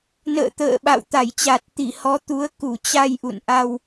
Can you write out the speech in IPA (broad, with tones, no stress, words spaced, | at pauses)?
nə̰ː˧˨t̪ə̰ː˧˨ ɓa̰˧˨w t̪a˧˩jt͡ɕa˨˩t̚t̪i˧˩ hɔ˨˦t̪u˨˦ə̯ ku˧˩t͡ɕa˧j ʔṵ˧˨nʔa˧w